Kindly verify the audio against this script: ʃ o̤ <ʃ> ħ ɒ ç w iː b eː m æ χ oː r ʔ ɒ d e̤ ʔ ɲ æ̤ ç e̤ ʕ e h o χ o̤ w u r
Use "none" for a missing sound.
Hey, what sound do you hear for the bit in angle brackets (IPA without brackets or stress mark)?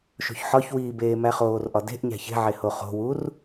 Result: ç